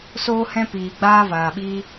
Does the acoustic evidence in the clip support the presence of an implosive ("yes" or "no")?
yes